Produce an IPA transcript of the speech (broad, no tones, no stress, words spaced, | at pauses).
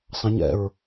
sˤɑ̃ɲ ɛ̰ɹ